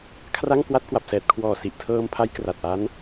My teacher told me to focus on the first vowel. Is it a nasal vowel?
no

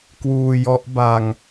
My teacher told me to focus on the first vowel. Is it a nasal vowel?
no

